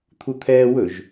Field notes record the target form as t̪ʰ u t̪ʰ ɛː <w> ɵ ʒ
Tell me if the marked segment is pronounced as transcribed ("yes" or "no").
yes